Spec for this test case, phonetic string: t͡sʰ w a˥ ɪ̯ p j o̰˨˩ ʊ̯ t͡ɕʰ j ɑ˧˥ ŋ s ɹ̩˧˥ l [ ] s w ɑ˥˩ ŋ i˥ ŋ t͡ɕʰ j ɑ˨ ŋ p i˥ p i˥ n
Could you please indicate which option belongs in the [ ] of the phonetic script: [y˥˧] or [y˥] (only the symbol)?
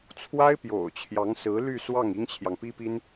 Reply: y˥˧